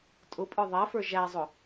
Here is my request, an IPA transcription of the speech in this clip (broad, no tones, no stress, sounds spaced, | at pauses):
tʼ ʊ pʼ ə˞ ðˤ æ f ə˞ ʒ æ zˤ ʊ